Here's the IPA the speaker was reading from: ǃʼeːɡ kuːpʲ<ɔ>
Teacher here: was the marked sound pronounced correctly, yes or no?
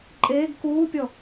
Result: yes